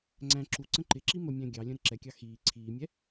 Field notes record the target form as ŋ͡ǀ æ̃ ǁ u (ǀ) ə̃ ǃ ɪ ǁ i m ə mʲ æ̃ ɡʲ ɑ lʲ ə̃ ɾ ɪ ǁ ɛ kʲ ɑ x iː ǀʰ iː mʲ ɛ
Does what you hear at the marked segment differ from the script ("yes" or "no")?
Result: no